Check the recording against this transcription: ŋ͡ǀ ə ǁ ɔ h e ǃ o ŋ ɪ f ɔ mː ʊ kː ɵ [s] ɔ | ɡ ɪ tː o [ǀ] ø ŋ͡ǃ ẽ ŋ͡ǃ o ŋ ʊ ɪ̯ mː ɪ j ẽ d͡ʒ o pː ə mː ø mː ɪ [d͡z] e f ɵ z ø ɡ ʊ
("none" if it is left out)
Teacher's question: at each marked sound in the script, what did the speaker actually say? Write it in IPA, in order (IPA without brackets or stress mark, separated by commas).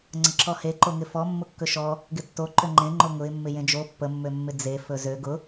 ʃ, ǃ, d͡z